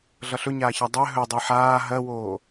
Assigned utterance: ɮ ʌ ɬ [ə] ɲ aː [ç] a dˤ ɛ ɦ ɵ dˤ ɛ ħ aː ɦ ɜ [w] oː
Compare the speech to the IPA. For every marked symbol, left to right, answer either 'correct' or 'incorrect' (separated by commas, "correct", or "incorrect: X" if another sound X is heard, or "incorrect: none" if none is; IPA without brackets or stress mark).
incorrect: ɵ, correct, correct